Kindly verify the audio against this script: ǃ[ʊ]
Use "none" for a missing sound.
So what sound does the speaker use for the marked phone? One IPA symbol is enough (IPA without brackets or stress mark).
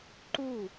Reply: u